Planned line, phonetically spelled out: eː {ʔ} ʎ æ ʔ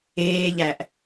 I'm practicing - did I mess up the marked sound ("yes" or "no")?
yes